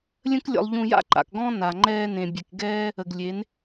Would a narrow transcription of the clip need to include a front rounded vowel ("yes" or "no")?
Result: no